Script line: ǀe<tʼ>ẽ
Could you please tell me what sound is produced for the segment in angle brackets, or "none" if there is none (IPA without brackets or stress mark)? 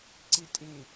tʼ